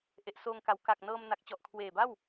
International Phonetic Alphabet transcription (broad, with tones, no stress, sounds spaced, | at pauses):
ʔ e˨˩ ʔ s oː˧ ŋ k a˩˦ w k a˨˩ k̚ n ɤː˧ m n a˨˩ k̚ t͡ɕ ɔ˨˩ ʔ kʰ w eː˨˩ b a˥˩ w